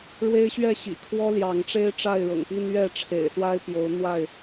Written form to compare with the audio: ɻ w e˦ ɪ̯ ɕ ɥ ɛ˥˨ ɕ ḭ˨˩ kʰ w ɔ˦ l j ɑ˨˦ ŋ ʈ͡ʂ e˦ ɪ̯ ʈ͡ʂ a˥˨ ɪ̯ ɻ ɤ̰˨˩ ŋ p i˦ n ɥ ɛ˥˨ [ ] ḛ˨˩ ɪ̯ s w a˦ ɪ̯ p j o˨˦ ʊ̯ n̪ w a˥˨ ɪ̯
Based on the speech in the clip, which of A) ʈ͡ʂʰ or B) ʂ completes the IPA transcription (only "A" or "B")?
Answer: A